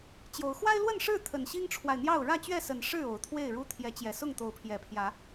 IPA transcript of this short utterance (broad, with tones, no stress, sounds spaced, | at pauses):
t͡ɕ j o˨˦ ʊ̯ x w a˦ ɪ̯ l w ə˥˨ n ʂ ɻ̩˥˨ t̪ʰ ə˨˩ n ɕ i˦ ŋ ʈ͡ʂʰ w a˨ ɪ̯ n̪ j ɑ˥˨ ʊ̯ ɻ ä˥˨ t͡ɕ ɥ ɛ˥˨ s ə˨˩ n ʂ ɻ̩˥˨ o˨˩ ʊ̯ t̪ʰ w e˥˨ ɪ̯ ɻ u˦ t̪ʰ j ɛ˨˦ t͡ɕ j ɛ˨˩ s ʊ˥˨ ŋ t̪ o˨˦ ʊ̯ pʰ j ɛ˨˩ pʰ j ä˨˦